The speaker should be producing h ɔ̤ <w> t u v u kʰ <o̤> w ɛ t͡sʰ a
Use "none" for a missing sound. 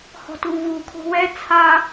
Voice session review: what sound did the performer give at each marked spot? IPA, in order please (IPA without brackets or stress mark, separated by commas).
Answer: none, o̤